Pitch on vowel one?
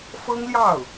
high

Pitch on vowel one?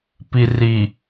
low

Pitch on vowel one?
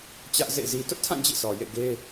high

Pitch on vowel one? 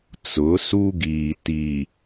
rising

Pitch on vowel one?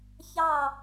falling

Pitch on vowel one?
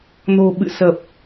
low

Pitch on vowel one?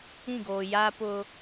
falling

